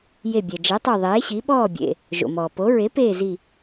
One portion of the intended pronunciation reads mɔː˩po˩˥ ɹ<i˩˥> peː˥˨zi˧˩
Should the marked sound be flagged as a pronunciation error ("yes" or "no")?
yes